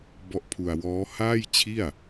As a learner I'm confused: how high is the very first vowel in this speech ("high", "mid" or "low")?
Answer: mid